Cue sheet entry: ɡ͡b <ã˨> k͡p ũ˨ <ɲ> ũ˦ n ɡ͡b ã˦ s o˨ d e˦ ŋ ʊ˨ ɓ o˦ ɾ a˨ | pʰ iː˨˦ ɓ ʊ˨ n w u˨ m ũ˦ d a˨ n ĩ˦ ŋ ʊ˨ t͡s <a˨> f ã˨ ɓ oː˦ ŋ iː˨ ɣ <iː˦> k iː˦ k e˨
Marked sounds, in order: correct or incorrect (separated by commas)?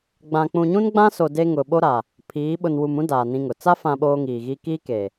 correct, correct, incorrect, correct